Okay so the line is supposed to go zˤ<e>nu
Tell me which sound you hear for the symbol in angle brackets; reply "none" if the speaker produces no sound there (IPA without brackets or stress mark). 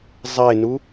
e